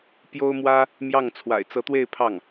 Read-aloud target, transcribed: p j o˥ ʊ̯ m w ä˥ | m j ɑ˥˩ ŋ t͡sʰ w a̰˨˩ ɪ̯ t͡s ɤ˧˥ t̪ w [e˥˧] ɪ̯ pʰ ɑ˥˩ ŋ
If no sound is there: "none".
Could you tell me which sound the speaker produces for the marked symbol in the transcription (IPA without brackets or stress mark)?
e˥˧